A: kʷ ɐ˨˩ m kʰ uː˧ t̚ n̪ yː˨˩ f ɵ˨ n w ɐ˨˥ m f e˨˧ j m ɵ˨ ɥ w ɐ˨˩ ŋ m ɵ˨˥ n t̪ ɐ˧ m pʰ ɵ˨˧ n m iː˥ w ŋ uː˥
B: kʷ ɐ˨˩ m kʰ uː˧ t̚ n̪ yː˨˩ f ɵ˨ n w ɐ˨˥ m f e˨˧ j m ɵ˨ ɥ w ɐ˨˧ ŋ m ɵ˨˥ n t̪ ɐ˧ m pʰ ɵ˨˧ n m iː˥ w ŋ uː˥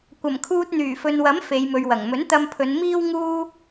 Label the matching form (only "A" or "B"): A